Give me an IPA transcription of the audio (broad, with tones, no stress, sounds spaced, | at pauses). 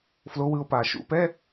f l o˩˥ w ɯ˩˧ o̯ p aː˩ ʃ ṵ˧˥˧ p ɛ˧˥˧